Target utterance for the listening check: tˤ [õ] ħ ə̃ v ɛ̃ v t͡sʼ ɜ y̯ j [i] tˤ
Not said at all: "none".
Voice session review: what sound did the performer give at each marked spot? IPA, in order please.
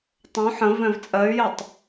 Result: õ, e

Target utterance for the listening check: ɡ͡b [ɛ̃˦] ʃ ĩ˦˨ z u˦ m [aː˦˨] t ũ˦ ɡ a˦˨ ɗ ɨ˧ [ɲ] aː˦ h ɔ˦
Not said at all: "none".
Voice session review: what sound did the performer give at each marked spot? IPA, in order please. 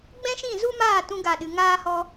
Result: ɛ̃˦, aː˦˨, ŋ

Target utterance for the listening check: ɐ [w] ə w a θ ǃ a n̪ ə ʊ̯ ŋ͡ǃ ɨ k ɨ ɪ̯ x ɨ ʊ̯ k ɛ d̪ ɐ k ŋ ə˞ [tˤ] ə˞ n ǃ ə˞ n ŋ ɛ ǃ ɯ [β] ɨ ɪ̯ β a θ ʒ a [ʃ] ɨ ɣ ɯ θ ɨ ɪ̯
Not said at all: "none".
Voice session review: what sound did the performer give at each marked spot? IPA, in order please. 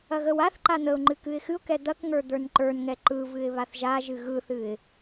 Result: ɣ, d̪, v, ʒ

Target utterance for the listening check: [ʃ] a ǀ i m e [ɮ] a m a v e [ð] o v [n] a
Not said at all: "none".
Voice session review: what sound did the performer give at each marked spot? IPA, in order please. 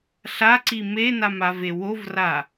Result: ɬ, n, w, r

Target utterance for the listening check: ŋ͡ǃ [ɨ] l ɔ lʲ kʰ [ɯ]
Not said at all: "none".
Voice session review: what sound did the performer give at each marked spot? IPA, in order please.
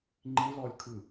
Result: i, ɯ

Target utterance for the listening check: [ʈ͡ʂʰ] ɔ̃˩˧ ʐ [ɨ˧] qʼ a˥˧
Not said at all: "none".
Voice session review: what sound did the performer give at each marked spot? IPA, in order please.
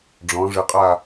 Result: ɖ͡ʐ, ɨ˧

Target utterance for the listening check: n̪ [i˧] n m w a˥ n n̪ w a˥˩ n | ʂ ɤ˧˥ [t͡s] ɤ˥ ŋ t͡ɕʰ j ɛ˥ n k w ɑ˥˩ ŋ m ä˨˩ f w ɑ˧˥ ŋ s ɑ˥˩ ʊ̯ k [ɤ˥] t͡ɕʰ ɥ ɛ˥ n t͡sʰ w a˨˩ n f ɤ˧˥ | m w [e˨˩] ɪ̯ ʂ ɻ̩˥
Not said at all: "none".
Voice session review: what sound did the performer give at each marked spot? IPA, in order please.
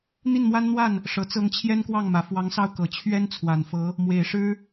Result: i˥˩, t͡s, ɤ˨˩, e˨˩

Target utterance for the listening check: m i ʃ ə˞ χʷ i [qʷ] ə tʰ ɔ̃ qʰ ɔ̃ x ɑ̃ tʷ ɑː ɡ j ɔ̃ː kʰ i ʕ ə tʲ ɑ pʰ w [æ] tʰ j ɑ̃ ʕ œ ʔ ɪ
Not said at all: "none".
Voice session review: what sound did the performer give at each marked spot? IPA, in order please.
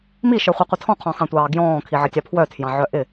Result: qʷ, œ

